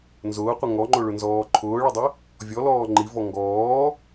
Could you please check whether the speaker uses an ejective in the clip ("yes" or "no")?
no